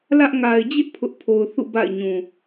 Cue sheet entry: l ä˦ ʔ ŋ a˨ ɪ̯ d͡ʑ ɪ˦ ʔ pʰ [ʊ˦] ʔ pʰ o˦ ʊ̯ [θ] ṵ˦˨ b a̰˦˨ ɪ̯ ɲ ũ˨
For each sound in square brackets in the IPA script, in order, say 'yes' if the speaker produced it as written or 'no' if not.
yes, yes

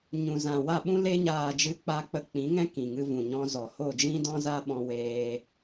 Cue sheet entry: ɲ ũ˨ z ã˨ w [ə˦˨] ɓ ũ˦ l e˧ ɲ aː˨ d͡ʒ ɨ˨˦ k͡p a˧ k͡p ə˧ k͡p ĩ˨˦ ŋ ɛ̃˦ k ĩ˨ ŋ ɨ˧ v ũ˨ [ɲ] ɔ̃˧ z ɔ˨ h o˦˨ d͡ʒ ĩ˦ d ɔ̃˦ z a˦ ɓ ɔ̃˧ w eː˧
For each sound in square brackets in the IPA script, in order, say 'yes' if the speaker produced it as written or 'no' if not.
no, yes

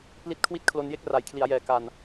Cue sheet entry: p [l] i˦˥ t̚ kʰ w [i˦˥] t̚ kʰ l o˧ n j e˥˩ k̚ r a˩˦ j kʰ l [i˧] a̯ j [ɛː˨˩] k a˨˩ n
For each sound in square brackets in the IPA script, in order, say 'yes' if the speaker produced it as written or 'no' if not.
yes, no, no, yes

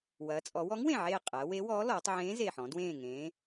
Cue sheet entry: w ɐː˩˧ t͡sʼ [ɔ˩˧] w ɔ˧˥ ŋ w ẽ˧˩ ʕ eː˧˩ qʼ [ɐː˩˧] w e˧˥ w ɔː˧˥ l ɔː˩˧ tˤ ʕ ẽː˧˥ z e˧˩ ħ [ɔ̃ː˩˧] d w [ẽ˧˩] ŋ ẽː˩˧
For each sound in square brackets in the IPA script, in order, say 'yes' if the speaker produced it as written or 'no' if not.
yes, yes, no, no

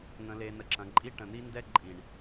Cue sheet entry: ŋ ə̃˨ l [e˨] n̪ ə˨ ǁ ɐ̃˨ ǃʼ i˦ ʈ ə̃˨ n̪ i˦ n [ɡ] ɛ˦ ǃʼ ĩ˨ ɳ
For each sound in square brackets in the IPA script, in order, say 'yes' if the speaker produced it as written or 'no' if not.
yes, no

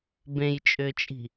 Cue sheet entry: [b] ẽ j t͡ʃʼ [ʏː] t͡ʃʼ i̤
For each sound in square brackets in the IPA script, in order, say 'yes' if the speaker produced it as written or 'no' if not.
yes, yes

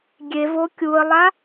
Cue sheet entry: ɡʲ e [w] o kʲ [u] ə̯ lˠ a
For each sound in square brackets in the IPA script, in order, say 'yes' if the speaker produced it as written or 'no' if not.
no, yes

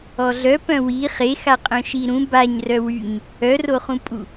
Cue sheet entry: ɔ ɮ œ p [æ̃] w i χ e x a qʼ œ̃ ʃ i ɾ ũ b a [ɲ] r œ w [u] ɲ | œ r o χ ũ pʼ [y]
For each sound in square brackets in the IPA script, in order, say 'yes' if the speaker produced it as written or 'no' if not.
no, yes, no, no

